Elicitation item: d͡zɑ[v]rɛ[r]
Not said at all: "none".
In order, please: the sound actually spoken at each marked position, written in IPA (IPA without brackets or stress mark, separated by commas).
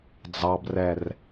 b, r